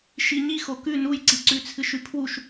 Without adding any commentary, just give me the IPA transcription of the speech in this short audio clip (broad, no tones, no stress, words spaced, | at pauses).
ʃiɲixo kʉ nujǀiǀʉt͡sʰɨʃ ʉpʰwuʃ